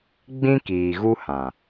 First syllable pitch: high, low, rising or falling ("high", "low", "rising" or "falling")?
high